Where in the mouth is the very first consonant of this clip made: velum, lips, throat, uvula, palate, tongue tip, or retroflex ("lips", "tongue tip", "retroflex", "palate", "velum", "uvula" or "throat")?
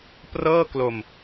lips